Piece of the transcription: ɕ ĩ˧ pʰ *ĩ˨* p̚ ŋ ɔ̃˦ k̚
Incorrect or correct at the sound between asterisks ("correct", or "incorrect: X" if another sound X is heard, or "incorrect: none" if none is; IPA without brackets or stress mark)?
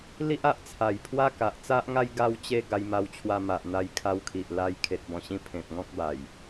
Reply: incorrect: ẽ˨